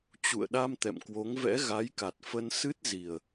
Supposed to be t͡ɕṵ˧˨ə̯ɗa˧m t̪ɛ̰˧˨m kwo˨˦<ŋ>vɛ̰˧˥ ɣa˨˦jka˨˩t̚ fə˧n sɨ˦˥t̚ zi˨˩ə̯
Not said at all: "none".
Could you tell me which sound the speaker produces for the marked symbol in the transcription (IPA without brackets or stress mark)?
ŋ